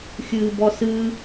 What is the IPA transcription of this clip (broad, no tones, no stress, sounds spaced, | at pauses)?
xʲ ɨː b ɔ s ɨ